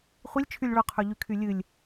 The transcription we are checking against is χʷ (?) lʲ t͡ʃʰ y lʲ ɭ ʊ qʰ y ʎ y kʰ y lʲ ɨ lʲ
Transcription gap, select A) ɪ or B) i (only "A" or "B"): B